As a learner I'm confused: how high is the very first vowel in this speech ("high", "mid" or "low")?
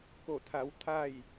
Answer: mid